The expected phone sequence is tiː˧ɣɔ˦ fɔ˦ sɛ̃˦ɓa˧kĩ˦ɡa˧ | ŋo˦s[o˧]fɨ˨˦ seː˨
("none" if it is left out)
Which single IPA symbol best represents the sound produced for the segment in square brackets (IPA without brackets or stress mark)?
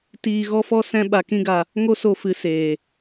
o˧